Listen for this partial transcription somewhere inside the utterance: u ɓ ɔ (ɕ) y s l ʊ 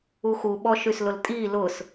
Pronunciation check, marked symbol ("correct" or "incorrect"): incorrect